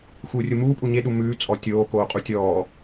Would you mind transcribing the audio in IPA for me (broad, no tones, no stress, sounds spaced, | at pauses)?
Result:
x uː rʲ u m uː pʼ u ɲ e ɗ u m ʉː t͡sʼ ɔ tʲ oː k oː qʼ u tʲ ɔː